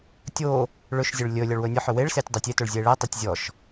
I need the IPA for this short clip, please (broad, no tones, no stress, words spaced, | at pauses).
tʲo | ɭɵʃzʲɵɭ lʲɵ lʲɔɭwɵnʲɔħɵ weɭsetʲ dˤotʲetoɭ zʲeɭetˤetʲ zʲɔʃ